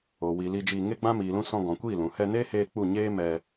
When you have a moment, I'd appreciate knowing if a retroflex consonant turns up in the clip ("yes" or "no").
no